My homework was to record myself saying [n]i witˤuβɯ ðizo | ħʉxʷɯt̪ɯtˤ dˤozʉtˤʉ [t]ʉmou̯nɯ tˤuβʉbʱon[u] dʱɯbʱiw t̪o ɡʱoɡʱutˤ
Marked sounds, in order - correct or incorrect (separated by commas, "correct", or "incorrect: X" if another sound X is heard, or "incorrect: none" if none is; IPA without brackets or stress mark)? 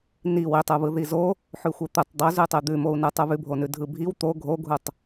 correct, incorrect: d̪, incorrect: ʉ